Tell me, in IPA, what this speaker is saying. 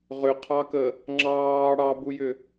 ʁʏqʰɑkə | ŋ͡ǁɑː ɽɑbujʏ

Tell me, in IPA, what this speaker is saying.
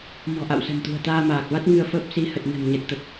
mɔ̤˨˩ʔa̰˧˨wsə̤˨˩m t̪ṳ˨˩ə̯t̪aː˧maː˨˩k̚va˦˥t̚ ŋɨ˧ə̯fəː˦˥p̚si˨˦ hə˨˩t̚nə̤˨˩m ɲə˨˩t̚t̪ə˨˩t̚

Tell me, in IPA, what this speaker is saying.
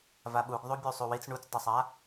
vaɓuɡ ðˤubʲusˤuwit͡s ɳut͡sdˤusˤa

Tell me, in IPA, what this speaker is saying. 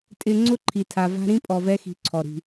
tʼɪ˥ ŋ͡ǀʊ˥ ǃʰi˧tʰa˧va̤˥ ɾĩ˥ pʼɔ˧vɛ˥xi̤˧ǀʰɔ˩ ɾi̤˩

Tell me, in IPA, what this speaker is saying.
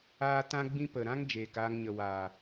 aː˦ tã˦ɡ͡bĩ˦pə˨ ɾã˦ŋ d͡ʒeː˨kaː˧ŋɲə˨ waː˨

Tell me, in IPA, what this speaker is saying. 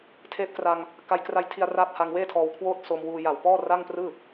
tʰeː˦˥p̚kra˧ŋ | ka˧jkra˦˥jtʰi˧a̯ raː˦˥p̚ha˧ŋweː˥˩tʰɔː˧w kʰwoː˥˩t̚so˧mwuː˧ ja˨˩wpɔː˥˩ ra˥˩ŋprɯː˥˩

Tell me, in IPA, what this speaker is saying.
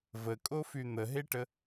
vəkʼofy n̪əɦeʈə

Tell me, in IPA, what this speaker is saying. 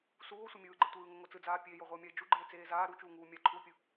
suːo̯sʷe mʲɯːɡ͡ǃe tʷɯːŋoŋo t͡sɯd͡zaː pʲeːjoʁʷeo̯mʲae̯ d͡ʒuɡ͡ǃeːt͡seː zaː ɾut͡ʃuːŋuː mʲaǃʰuːpʲɯ

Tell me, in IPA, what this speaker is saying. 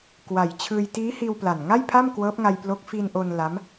kwa˨˩jt͡ɕʰɯː˧j tiː˦˥ hiː˧wpla˨˩nŋa˥˩j pʰa˥˩mkwɤː˦˥p̚ŋa˧jplo˦˥k̚ fi˧nʔo˧n la˦˥m

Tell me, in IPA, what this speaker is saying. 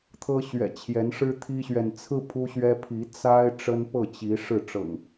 t̪ʰɤ˦ɕɥɛ̰˨˩t͡ɕʰjɛ˨˦n ʂɻ̩˦t̪ʰi˦ɕɥɛ˨n t͡sʰɹ̩˦ pʰu˦ɕɥɛ˦ pʰi˨˦ t͡sa˦ɪ̯ ʈ͡ʂə˦npɤ˥˨t͡ɕi˨˦ ʂɻ̩˥˨ ʈ͡ʂɤ̰˨˩ŋ

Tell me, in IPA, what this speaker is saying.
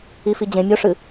ifi d͡ʑẽ mʲoʂɨ

